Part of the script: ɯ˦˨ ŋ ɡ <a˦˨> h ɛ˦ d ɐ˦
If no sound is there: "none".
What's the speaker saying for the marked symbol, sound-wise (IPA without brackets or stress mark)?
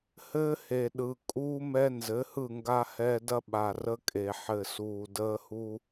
a˦